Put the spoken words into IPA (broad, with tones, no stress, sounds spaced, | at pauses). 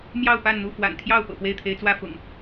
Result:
m j ɑ˥˨ ʊ̯ p a˥˨ n n̪ u˥˨ f w a̰˨˩ n t̪ʰ j ɑ˥˨ ʊ̯ p ɤ̰˨˩ p w e˥˨ ɪ̯ t̪ʰ e˨˦ ɪ̯ t͡s w ä˥˨ f ʊ̰˨˩ ŋ